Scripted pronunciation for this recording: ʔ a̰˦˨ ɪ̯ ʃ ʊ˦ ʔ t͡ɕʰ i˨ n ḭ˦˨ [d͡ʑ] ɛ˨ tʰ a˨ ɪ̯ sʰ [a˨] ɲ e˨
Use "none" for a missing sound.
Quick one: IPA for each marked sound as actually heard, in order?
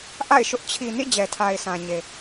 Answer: d͡ʑ, ã˨

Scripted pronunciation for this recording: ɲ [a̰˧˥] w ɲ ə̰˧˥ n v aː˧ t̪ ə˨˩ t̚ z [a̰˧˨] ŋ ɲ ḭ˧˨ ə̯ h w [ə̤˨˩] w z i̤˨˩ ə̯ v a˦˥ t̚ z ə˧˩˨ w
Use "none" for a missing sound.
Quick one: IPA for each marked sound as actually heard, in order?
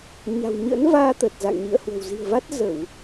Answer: a̤˨˩, a̰˧˨, ə̤˨˩

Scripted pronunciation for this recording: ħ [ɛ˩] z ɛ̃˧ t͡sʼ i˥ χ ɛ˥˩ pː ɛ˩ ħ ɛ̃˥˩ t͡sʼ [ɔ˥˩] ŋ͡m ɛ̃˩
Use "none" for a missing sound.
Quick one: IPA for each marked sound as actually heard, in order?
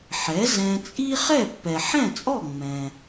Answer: ɛ˩˥, ɔ˥˩

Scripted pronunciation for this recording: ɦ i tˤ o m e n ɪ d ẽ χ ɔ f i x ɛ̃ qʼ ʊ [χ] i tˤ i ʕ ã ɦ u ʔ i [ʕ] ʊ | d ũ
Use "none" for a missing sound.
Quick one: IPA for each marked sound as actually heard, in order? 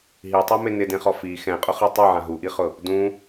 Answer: χ, χ

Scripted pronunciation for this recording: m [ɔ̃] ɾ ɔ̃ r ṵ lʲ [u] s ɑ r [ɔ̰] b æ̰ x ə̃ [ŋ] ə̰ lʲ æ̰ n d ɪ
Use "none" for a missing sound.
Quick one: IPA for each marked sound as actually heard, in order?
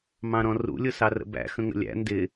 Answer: ɑ̃, ʊ, ə̰, ŋ

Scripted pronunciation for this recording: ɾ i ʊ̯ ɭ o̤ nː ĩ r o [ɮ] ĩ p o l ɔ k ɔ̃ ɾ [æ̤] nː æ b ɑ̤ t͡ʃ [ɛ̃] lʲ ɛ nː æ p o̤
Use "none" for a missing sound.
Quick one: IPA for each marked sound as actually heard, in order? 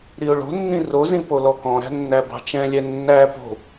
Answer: z, æ̤, ɛ̃

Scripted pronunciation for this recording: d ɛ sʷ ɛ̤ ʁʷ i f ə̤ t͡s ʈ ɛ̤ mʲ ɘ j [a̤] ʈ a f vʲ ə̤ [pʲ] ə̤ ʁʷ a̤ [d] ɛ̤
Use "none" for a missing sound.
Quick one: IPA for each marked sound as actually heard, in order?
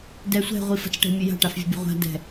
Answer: a̤, bʲ, d

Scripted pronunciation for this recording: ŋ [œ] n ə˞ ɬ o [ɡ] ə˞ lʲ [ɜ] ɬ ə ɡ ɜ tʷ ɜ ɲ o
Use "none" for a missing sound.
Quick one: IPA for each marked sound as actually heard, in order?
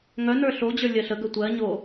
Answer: œ, d͡ʑ, ɜ

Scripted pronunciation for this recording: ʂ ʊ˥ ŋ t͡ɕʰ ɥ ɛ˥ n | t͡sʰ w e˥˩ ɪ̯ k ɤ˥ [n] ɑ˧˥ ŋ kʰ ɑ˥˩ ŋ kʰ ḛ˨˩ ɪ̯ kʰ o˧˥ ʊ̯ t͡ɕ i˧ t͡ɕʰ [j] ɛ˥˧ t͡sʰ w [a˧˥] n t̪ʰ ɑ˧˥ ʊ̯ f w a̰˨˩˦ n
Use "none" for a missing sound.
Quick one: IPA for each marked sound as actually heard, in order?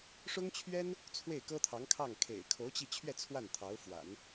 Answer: t̪ʰ, ɥ, a˥˩

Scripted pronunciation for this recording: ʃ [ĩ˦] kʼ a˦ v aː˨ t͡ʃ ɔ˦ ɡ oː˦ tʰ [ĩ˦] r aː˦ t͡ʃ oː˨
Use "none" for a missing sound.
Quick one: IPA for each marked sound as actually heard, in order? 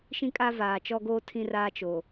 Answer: ĩ˦, ĩ˦

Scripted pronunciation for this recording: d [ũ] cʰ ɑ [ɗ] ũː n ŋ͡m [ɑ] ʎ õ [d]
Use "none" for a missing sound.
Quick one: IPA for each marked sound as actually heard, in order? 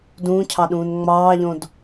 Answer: ũː, ɗ, ɑː, d

